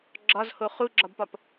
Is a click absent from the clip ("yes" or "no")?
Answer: no